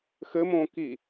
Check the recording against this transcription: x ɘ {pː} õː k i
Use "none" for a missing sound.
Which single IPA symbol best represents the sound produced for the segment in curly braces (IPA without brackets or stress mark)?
m